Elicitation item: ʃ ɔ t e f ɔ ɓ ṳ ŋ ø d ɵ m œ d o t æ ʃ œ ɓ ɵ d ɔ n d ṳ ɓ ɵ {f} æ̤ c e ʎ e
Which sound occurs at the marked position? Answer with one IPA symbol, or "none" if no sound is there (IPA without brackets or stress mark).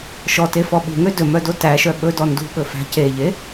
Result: f